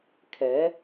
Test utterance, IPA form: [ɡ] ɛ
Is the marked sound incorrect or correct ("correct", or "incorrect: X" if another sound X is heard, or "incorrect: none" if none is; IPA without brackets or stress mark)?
incorrect: kʰ